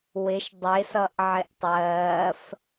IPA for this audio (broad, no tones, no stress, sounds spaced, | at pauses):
w ɪ ʃ dˤ ɪ s ʌ ʔ ʕ ɪ ʔ tˤ ɜː f